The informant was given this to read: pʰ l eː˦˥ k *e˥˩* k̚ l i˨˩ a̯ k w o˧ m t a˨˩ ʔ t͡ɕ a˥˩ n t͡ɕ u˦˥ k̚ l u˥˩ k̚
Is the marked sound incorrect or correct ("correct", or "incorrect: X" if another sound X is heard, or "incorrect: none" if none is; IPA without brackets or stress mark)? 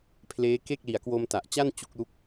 correct